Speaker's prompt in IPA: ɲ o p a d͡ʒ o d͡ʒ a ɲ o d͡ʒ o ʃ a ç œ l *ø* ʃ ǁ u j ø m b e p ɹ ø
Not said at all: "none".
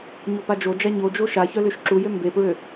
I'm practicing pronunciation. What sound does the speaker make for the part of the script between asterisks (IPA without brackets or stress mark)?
ø